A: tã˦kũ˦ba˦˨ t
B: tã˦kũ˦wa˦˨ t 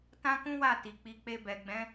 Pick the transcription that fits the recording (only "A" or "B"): B